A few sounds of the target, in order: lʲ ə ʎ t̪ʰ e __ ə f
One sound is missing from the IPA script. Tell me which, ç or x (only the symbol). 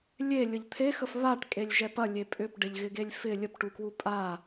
x